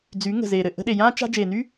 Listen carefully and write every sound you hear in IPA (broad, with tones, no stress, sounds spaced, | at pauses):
d͡z y˨˦ ŋ ə̤˨ z eː˨ ɾ ɘ˨ ʔ ə̤˧ ɗ e˨ j ãː˦ t͡ʃ a̤˦ d͡ʒ eː˨ n y˦